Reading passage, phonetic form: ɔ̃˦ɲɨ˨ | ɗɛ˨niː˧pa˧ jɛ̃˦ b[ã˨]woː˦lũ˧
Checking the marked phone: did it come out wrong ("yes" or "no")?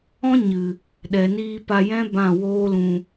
yes